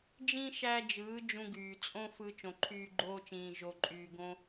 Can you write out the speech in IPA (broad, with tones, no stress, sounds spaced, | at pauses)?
d͡ʒ ĩ˦ ʃ æ˦ d͡ʒ ɯː˨˦ d͡ʒ ũ˧ ɡ yː˨ t͡sʼ õ˦ f ɯ˧ t͡ʃ õ˨ ǃʰ yː˧ ɡ͡ǃ oː˧ t͡ʃ ĩː˨ ʒ o˨ ǃʼ yː˨ ɡ õ˧